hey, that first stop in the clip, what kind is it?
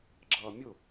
click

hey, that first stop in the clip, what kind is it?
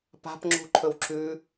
plain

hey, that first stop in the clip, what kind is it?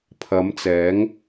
aspirated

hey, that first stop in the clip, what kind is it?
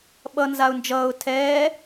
implosive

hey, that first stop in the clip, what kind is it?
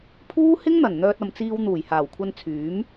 aspirated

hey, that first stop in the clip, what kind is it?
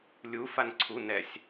click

